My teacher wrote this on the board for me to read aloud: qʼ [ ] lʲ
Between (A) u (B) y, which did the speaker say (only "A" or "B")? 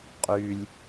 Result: B